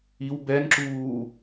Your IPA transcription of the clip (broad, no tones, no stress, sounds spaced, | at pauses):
i w b ɛ n ǁ uː